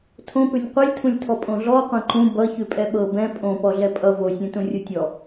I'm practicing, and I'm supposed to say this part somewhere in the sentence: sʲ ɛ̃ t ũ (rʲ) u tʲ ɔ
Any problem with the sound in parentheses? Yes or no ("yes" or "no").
no